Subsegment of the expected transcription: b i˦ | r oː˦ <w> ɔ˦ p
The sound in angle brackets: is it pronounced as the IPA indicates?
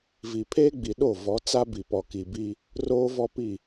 no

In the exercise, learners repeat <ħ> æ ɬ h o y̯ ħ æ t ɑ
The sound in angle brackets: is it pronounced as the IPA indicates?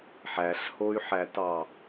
yes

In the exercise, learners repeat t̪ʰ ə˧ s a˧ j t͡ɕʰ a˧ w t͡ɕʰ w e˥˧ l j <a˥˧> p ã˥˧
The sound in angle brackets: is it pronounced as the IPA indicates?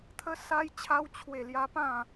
no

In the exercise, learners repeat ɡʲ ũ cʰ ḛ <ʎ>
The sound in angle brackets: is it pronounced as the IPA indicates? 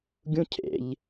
yes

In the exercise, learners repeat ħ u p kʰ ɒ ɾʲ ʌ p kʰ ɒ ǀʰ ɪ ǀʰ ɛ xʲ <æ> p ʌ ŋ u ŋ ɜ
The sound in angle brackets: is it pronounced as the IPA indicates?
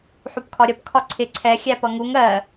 yes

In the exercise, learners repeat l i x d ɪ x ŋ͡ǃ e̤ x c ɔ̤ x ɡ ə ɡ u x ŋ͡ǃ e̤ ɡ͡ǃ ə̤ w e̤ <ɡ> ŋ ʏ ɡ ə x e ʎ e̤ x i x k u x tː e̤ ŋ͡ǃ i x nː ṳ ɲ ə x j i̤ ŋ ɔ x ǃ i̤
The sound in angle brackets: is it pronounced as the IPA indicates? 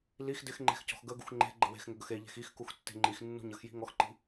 no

